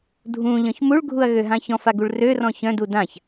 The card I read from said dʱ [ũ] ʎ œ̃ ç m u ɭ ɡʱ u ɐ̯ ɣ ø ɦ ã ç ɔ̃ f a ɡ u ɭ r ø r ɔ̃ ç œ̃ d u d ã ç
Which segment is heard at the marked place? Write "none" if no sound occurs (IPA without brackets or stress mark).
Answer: ũ